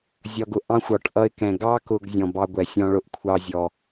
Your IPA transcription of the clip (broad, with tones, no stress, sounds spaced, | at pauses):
zʲ ɒ˨ ɡ ʊ˨ ʔ ɑ̃˦ xʷ ɒ˨ ʈ ʔ ʌ˦ ɪ̯ k ɛ̃˨ ɡ ɑ˦ k ʊ˨ ɡ zʲ ɔ̃˨ b ɑ˦ ɡʷ ɛ˨ sʲ ɔ̃˦ ɭ ʊ˦ ʔ kʷʰ ɑ˦ zʲ ɔ˨